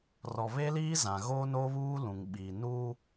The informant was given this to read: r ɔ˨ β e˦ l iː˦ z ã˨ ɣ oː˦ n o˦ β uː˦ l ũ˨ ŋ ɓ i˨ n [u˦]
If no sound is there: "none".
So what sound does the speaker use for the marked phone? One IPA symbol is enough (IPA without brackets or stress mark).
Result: u˦